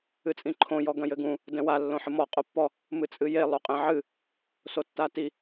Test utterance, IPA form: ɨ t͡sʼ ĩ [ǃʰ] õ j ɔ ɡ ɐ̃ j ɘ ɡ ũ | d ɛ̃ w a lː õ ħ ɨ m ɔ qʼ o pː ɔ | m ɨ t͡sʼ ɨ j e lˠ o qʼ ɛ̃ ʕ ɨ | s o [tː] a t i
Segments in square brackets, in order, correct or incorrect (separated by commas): correct, correct